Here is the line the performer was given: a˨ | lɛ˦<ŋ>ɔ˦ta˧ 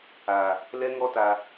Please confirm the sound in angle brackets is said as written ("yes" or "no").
yes